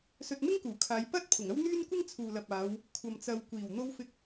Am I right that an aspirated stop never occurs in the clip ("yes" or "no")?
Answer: no